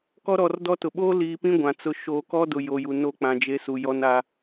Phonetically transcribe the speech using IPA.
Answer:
k ɔ˦ ɾ ɔ˨ r d ɔ˦ t ʊ˨ ɓ oː˦ l iː˨ p ĩ˦ ɡʷ ã˨ t͡s ʊ˦ ʃ oː˨ k ɔ˦ d ʊ˨ j o˨ j u˨ n o˦˨ k͡p ã˨ d͡ʒ e˦ s u˨ j ɔ˦ n a˦

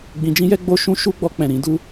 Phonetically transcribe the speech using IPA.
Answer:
ɡ͡b ĩ˧ d͡ʒ ĩ˦ j ɛ˦ ɡ͡b o˦ ʃ ũ˦ ʃ u˦ ɡ͡b ɔ˧ k͡p ɛ̃˨ ɾ ĩ˧ d u˦

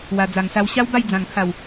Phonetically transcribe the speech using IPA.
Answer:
w a˨˩ d͡z a˨˩ ŋ s a˧ w ɕ a˦ w b a˥˧ j d͡z ã˨˩ ŋ kʰ a˨˩ w

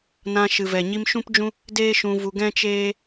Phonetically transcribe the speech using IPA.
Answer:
n ã˧ ʃ ɨ˨ v ɛ˨ ɲ i˧ m ʃ ũ˦ p d͡ʒ ũ˦ | d eː˦ ʃ ũ˧ v u˧ ɡ ɛ̃˦ t͡ʃ eː˦

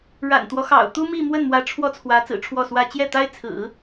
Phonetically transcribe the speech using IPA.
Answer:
ɻ a̰˨˩ n t̪ w ɔ˦ x ɑ̰˨˩ ʊ̯ t̪ u˥ m i˥˧ m w ə˥˩ n m w ä˧˥ ʈ͡ʂʰ w ɔ˥˩ t͡sʰ w ä˧˥ t͡s ɹ̩˨˩ ʈ͡ʂʰ w ɔ˥˩ s w ä˥ t͡ɕ j ɛ˥˩ t̪ a˥ ɪ̯ t͡sʰ ɹ̩˨˩˦

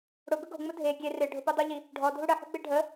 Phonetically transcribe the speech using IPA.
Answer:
ɽ ʊ ɡ ʊ ɡ o̤ ŋ͡m ʊ dʱ e ɡʲ e r ɪ ɖʱ ʊ p u dˤ o ʎ i | ɖʱ ɔ dʱ u ɽ ə ħ ṳ ɡ͡b e ɖʱ ə

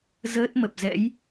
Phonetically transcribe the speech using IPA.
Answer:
z əː˦˥ t̚ m ə˨˩ p̚ z ɛ̰˧˥ j

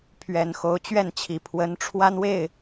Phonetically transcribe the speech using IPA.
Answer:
pʰ ɥ ɛ˨˩ n x o˧˥ ʊ̯ t͡ɕ ɥ ɛ˥˩ n t͡ɕʰ i˨˩ pʰ w ə˧˥ n ʈ͡ʂʰ w a˥ n w e˥˩ ɪ̯

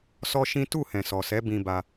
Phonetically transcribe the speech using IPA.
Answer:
s ɔ˦ ʃ ĩ˦ t u˦˨ h ɛ̃˨ s ɔ˨ s ɛ˨˦ b ĩ˧ b a˧

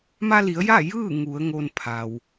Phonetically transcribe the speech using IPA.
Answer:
m a˧ l i˩˧ ə̯ j a˥˨ j ɯː˥˨ ŋ u˩˧ ə̯ ŋ o˧ n pʰ a˩ w

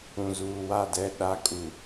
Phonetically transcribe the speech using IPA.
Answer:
ũ˨ z uː˨ w a˦˨ d ɛ˦˨ ɗ a˦ kʼ u˨

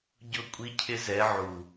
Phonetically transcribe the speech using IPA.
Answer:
ɟ ʊ˦˨ kʷʼ i˦ cʰ ɪ˦ z ɛ˨˦ ʕ u˨

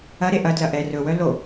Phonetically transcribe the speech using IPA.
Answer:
ɐ ɾ e ʔ ɐ d l ɐ ʔ ɛ r ɵ w œ l o

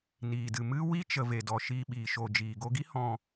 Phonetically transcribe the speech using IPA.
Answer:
n iː˨ d ɨ˨ m ɨ˦ w i˦ t͡ʃ ə˧ v e˨ d ɔ˨ ʃ iː˧ ɓ iː˨ ʃ o˨ d͡ʒ iː˨ ɡ o˧ ɡ i˦ h ɔ̃˧

